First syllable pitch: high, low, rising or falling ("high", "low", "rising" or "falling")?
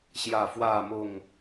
low